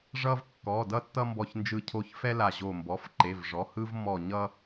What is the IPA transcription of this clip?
ʐʌ˦vkːɔ˩˧˩dʌ˦ tːʌ˦mbɔ˧˩çnd͡ʒɯ˧˩ cʰo˧˩çfɛ˦ la˧˩ʑo˧˩ mbɔ˩˧˩fǃe˩˧˩vʐɔ˩˧˩ hɯ˦vmɔ˧˩ɲʌ˦

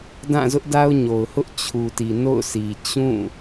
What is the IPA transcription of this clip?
dã˦˨zʊ˦ʔ da˦ʊ̯ɲo˨ʊ̯hʊ˦ʔ t͡ɕʰu˨ti˨ no̰˦˨ʊ̯sʰi˨ t͡ɕũ˦˨

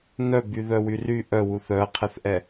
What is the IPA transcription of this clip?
nœbyðœwy ry ʔœwu θœɐ̯qʰɛθʔɛ

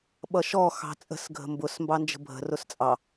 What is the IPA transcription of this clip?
ɓʌʃɔxɑ̤ t͡sʼə̤sɡʱə̤ mbʊs mbɑnd͡ʒə̤bʱə̤rʊs t͡sʼɑ

